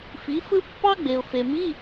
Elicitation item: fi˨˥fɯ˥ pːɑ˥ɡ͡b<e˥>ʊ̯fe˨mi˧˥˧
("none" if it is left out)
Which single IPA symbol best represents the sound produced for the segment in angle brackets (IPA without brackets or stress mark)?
e˨